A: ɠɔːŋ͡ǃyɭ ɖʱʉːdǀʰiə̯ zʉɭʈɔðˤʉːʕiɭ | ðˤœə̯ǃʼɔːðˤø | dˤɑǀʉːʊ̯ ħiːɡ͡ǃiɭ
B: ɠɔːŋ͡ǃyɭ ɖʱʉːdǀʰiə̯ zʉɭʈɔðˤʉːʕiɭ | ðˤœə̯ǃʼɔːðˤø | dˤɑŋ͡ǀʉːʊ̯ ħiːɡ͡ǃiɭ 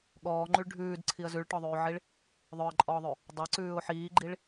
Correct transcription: A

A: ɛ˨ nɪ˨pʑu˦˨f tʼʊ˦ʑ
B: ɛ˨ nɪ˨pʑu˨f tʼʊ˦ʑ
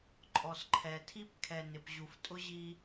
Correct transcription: B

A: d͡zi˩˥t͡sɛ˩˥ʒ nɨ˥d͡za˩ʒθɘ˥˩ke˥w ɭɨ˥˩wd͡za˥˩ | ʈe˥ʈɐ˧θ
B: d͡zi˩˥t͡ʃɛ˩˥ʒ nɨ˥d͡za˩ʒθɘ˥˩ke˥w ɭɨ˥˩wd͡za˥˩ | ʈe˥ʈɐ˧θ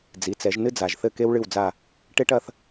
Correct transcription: A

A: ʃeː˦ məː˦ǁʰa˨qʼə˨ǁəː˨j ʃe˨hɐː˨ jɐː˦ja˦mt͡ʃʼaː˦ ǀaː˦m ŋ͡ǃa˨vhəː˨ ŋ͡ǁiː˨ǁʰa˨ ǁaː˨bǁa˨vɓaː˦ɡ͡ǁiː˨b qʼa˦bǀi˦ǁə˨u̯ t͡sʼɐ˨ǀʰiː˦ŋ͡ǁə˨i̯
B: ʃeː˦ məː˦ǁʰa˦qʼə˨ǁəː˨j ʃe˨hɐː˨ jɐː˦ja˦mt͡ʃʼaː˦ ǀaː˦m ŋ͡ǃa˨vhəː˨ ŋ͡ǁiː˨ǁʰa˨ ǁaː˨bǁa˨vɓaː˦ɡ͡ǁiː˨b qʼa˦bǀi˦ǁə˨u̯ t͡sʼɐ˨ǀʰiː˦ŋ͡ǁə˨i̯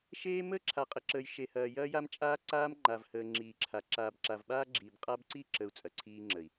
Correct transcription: A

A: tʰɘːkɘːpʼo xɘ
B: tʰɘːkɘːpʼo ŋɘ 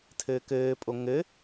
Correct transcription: B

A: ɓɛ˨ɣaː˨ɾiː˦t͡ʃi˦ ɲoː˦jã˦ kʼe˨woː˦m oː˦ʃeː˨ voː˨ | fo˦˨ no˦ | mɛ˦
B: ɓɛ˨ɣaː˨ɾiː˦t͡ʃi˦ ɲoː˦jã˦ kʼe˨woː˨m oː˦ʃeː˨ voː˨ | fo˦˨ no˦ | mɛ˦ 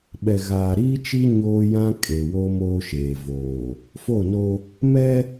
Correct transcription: A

